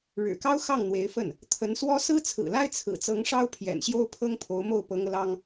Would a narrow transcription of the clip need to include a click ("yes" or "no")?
no